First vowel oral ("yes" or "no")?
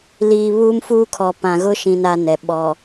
yes